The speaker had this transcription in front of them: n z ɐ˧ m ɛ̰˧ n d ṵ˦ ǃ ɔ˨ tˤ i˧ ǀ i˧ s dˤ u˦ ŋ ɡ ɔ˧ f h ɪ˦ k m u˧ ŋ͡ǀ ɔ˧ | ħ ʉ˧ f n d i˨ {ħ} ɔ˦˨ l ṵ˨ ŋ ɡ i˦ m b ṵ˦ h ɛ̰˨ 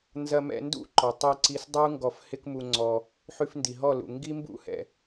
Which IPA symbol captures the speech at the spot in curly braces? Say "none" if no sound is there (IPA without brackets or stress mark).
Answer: ɦ